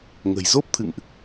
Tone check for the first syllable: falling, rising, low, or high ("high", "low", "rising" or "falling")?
low